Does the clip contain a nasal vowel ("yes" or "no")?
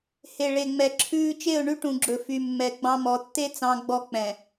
yes